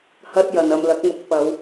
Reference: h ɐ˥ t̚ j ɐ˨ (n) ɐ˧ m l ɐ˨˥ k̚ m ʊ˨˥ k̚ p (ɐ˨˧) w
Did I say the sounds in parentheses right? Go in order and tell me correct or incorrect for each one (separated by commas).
correct, correct